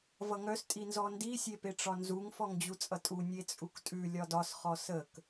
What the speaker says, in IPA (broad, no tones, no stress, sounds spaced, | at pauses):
v ʌ ŋ œ s tʼ i n z ɔ n d i sʲ e p e ʈ͡ʂ ɒ n z u ŋ f ɔ ŋ d͡ʑ u t͡sʼ ʌ tʼ u nʲ e t͡sʼ u k tʼ ʉ lʲ ɒ d ɒ s χ ɔ s ə k